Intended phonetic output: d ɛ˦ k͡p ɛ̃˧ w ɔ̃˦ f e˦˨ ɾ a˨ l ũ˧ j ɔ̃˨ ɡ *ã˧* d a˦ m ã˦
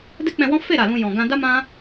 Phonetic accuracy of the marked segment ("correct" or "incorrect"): correct